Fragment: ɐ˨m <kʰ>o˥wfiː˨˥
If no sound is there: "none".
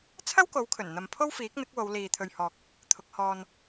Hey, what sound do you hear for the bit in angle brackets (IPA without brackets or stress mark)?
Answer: pʰ